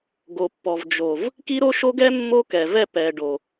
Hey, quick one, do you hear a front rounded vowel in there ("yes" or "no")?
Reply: no